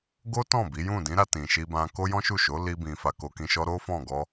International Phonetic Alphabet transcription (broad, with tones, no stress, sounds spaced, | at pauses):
ɡ o˦ t ɔ̃˦˨ b i˨˦ j ũ˦˨ d ĩ˨˦ ɾ a˧ t ĩ˨ ʃ i˧ b ã˧ k o˦ j ɔ̃˦ ʃ u˦˨ ʃ o˨˦ l i˦ b ĩ˧ f a˧ k o˧ k ĩ˧ ʃ ɔ˦ ɾ o˦ f ɔ̃˦˨ ɡ ɔ˧